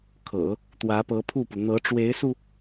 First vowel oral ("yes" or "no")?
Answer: yes